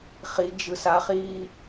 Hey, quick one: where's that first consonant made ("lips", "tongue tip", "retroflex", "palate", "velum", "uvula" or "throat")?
uvula